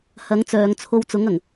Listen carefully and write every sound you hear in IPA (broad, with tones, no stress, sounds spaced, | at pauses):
h ɐ˨˥ ŋ t͡s œː˨ ŋ t͡sʰ o˧ w t͡s ʊ˨˥ ŋ ɐ˨˩ ŋ